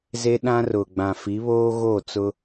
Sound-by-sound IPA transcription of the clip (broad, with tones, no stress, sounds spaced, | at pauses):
z e˦ ɗ ã˦ r ʊ˨ ɡ͡b ã˨ f i˨˦ β oː˦ ɣ o˦˨ t͡s ʊ˦